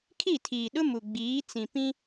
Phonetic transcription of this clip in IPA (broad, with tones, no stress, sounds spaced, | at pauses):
kʰ i˦˨ tʰ iː˨ ɗ ʊ˦ m u˨ ɡ͡b iː˨˦ t͡s ĩ˨ p ĩ˦